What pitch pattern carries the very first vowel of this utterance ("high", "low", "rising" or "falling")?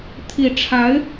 low